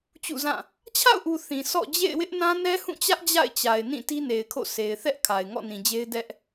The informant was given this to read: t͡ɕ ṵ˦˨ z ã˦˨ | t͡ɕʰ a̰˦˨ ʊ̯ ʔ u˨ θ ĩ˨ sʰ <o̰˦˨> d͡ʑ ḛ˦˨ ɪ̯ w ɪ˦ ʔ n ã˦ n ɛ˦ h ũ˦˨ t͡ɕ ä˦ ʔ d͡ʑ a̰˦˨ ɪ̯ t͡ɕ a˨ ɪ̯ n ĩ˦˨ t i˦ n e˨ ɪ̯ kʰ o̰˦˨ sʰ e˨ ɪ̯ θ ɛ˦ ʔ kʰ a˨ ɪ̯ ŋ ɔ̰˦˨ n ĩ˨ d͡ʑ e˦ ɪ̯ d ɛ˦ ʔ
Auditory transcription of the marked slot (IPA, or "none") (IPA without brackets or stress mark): ɔ̰˦˨